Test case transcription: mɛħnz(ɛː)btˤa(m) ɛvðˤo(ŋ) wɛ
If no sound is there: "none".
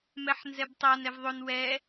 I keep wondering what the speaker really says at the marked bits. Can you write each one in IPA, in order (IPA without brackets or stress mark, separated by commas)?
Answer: ɛ, n, n